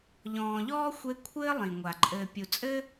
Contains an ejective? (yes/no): yes